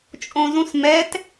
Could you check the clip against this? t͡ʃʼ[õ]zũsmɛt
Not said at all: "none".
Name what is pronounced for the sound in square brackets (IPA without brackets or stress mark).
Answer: õ